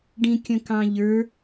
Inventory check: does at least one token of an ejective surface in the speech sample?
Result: no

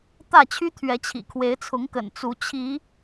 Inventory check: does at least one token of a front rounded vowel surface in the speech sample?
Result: yes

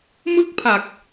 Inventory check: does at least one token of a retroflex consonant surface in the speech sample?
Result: no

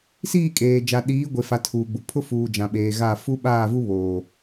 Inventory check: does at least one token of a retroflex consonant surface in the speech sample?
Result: no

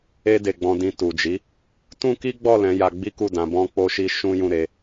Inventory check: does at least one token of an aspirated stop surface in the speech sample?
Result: no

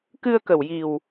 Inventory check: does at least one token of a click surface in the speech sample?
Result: no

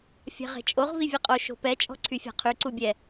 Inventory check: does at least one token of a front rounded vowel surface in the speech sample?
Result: yes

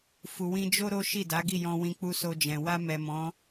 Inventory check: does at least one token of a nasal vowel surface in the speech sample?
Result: yes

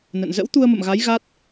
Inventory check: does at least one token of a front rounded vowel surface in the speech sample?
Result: no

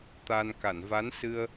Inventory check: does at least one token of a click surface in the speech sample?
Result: no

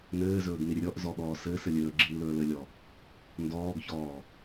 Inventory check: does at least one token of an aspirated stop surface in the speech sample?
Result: no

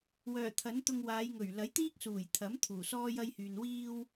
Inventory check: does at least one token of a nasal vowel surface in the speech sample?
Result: no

